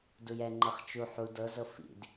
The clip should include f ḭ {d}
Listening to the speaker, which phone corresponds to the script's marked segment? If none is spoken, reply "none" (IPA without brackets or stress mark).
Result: d